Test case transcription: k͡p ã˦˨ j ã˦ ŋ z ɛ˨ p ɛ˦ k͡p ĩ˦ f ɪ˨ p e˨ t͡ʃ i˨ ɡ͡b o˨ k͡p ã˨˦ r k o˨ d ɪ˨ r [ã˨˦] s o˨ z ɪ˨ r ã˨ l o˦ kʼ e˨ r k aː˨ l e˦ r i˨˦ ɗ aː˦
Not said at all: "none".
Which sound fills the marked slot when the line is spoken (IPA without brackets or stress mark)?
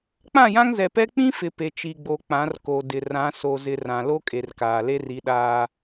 ã˨˦